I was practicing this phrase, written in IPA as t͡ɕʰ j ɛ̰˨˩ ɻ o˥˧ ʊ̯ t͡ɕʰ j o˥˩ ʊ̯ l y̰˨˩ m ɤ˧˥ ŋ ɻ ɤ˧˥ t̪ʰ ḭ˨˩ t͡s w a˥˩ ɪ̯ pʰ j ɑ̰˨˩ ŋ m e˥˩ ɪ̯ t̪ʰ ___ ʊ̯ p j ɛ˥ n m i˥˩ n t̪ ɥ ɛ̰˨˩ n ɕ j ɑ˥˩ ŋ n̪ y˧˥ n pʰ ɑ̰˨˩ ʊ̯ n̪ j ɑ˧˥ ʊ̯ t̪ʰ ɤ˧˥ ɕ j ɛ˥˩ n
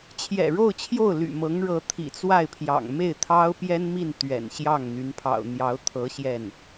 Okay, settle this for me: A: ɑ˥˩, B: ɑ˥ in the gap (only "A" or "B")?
B